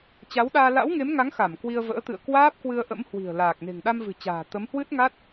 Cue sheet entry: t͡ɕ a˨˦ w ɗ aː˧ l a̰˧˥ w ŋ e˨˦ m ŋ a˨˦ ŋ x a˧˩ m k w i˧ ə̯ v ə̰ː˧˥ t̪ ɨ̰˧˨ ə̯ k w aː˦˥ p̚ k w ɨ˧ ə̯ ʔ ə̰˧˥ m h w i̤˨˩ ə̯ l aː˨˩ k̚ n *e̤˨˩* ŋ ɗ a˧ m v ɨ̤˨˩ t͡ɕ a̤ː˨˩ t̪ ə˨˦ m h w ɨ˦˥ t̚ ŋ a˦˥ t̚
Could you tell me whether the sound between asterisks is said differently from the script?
no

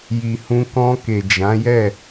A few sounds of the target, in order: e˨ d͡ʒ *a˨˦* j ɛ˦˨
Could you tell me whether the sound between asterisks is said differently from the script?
yes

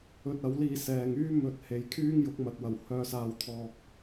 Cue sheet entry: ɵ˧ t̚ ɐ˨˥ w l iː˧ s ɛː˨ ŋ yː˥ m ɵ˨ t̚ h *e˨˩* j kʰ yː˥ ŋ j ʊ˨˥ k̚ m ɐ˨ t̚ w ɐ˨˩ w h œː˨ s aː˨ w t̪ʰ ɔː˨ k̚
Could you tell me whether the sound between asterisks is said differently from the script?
yes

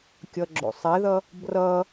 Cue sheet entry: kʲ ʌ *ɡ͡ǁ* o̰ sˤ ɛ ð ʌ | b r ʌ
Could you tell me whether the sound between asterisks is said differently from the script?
no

